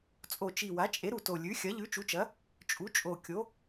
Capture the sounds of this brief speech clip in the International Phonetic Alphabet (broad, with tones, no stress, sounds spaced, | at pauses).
t͡sʼ o˨˩ t͡ʃ i˨˩ w a˩˥ t͡ʃʼ e˩˥ ɾ u˨˩ t o˨˩ lʲ ʉ˩˥ xʲ ɐ˩˥ ʎ ʉ˩˥ t͡ʃ u˩˥ t͡ʃ ɐ˩˥ | t͡ʃʼ u˩˥ t͡ʃʼ o˨˩ kʲ o˩˥